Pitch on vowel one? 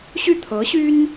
falling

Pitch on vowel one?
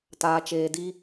low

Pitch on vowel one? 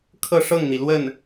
falling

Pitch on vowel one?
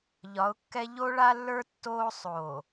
rising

